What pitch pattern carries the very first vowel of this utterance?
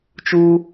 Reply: high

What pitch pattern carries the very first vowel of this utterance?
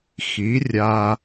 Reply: rising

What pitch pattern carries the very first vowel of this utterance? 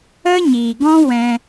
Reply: high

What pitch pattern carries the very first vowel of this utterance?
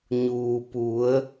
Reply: low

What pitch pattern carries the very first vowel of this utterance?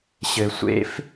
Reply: low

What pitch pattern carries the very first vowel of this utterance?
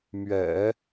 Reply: low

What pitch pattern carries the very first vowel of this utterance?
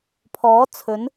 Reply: rising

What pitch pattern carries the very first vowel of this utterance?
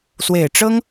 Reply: low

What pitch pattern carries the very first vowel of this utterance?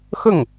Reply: falling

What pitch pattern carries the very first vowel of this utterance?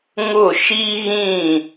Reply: falling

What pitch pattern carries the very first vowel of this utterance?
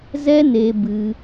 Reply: high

